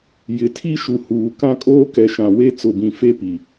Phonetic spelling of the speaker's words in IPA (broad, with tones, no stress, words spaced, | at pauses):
jɪ˨˦tʰi˦ʃu˨ huː˨ kã˦kʼoː˦kɛ˨ ʃã˨we˦ t͡sʊ˨bĩ˨fe˦ pi˨